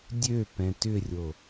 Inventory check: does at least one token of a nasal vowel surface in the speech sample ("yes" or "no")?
yes